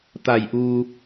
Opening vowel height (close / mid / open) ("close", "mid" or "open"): open